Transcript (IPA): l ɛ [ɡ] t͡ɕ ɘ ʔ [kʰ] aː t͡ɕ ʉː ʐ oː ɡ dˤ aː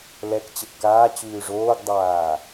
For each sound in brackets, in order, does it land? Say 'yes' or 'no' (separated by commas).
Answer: no, no